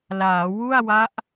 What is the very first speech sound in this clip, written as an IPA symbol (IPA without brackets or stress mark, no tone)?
l